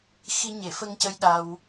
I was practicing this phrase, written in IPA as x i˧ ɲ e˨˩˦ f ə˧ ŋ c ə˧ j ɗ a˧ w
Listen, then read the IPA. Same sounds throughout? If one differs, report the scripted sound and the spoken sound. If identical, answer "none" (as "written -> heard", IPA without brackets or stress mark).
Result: none